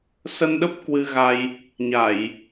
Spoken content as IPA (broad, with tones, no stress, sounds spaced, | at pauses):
s ə˧ n ɗ ə˦˥ p̚ k w ɨ˧ ɣ a˧ j | ɲ a˧˩˨ j